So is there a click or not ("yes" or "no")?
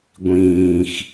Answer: no